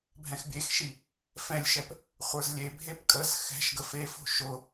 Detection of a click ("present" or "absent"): absent